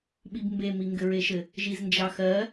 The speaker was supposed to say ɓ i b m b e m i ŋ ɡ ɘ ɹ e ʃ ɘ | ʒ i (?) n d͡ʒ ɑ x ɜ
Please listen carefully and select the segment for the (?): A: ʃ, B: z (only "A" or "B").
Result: B